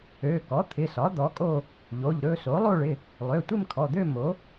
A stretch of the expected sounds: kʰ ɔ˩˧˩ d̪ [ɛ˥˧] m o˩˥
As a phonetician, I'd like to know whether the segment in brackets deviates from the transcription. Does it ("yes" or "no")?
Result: yes